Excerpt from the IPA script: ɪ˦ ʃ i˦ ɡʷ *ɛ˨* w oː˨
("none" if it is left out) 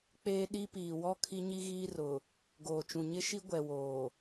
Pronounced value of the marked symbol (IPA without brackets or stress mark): ɛ˨